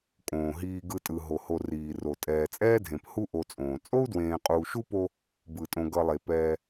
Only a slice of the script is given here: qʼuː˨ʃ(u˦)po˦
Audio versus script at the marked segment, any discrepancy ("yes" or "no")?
yes